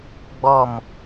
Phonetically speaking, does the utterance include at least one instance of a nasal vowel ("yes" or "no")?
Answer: no